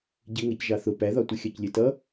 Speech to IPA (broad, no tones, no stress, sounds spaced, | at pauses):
ɟ ɪ ŋ ɛ c ʒ ɑ θ ʊ p æ ð ɒ tʷ ə xʲ ɑ c lʲ ɛ t ʌ